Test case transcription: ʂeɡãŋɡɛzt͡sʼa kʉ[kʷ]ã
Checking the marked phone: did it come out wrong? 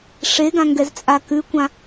no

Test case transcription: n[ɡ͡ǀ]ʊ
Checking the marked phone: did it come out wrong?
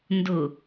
yes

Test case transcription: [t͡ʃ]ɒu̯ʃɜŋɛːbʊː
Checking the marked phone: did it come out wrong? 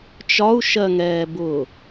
no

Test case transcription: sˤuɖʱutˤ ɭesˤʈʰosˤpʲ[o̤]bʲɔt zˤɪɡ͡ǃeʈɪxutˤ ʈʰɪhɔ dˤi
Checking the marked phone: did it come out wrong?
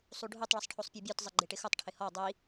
yes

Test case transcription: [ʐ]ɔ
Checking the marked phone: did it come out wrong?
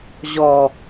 yes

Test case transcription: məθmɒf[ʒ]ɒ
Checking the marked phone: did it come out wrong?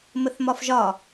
no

